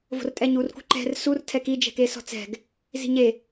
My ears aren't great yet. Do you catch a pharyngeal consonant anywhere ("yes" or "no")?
no